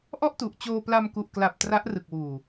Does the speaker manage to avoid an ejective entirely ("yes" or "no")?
yes